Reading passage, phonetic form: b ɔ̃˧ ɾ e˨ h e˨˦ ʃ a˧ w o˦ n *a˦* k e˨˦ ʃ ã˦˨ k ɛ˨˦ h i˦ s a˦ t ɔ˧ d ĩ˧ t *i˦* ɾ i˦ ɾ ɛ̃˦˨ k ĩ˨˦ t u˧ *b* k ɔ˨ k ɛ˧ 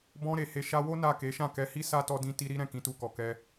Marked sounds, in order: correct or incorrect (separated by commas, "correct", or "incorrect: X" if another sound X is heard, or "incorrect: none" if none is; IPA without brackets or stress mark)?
incorrect: a˦˨, incorrect: i˧, incorrect: none